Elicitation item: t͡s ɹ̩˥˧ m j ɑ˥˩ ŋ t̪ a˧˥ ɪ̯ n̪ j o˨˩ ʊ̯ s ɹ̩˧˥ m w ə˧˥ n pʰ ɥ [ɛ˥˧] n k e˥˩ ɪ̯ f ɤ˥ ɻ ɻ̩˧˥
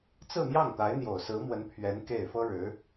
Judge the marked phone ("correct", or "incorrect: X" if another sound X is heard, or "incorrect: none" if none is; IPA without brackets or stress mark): incorrect: ɛ˧˥